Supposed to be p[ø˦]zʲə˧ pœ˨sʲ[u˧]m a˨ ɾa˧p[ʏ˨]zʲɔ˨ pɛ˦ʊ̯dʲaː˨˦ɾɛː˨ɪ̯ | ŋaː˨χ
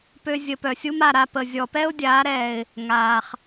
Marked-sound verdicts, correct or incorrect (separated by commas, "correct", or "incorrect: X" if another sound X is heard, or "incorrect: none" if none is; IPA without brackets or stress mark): correct, incorrect: u˦, incorrect: ə˨